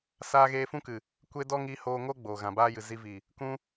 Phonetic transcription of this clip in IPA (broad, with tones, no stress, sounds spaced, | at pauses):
s aː˧ ɣ eː˧ f ũ˦ k ɨ˨ | kʷ e˦ d ɔ˦ ŋ i˧ h oː˧ ŋ o˦ ɡ͡b oː˨ ɣ ã˨ b aː˦ j ɨ˨ z i˧ v i˨ | k ũ˦